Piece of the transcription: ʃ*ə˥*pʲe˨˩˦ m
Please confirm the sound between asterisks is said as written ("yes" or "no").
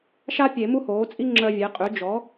no